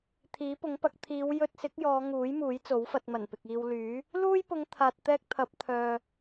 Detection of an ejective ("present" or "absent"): absent